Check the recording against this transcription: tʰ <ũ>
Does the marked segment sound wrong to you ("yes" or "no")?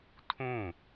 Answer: no